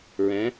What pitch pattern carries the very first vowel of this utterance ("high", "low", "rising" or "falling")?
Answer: rising